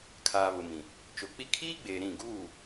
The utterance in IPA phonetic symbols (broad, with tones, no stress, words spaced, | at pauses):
kʰaː˨βʊ˨mĩ˨ | t͡ʃo˨k͡pi˦ kʰiː˦ɡ͡beː˨ ɾĩ˦˨ ɡuː˦˨